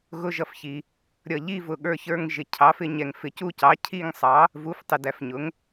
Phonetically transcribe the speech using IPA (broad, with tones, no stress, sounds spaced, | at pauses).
ɣ ʊ˦˨ ʒ ʌ˦˨ f ç i˨ | ɾʲ ʌ˨ ʎ i˦˨ v ʊ˨ ɠ ə˞˦˨ ç ə˞˦˨ ŋ ʒ ɪ˨ cʰ ɑ˩˥ f ɪ˨ ɲ ɛ˨ ŋ f ɪ˨ c u˦˨ c ɑ˩˥ cʰ i˦˨ ŋ sˤ ɑ˩˥ | v u˩˥ f tˤ ɪ˨ d æ˨ f ɲ ʊ˩˥ ŋ